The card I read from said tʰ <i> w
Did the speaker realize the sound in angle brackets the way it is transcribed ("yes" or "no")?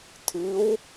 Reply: no